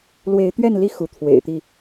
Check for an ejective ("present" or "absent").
absent